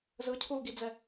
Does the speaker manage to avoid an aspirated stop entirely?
no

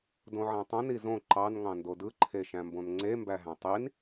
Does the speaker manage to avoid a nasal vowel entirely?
no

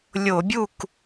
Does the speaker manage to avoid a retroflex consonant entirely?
yes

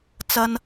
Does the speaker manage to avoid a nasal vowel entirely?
yes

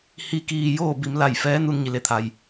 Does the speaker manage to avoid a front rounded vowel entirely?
yes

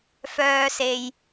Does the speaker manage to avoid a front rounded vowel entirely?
no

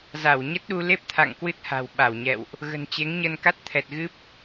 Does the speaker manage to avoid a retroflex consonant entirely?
yes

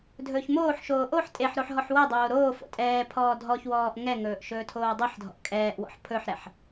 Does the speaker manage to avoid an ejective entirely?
no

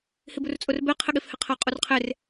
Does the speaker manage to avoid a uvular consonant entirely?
no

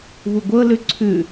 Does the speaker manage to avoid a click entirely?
no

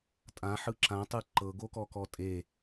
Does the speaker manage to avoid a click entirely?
no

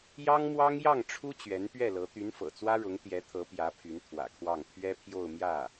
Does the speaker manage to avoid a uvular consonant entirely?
yes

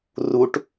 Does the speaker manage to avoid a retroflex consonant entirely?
no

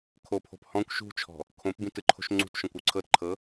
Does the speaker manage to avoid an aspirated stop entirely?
no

